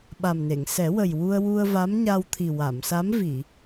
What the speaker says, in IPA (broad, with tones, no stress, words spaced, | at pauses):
ɓa˨˩mne˨˩˨ŋ sɛ˨˩˦wə˨˩jwu˧ə̯ wu˧ə̯va˧˥mɲa˧wt̪ʰi˨˩ wa˨˩˨msa˧˥mvi˨˩˨